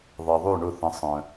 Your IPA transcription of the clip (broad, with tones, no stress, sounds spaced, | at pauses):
ðˤ ɛ˩ ðˤ ʉ˥˩ ɳ ʊ˥˩ θ ə̃˩˥ sˤ œ̃˩